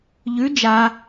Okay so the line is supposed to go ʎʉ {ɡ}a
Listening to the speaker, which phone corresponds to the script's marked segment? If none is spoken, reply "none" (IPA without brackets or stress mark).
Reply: d͡ʒ